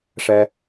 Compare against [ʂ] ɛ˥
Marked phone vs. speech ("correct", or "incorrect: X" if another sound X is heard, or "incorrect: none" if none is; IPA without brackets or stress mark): correct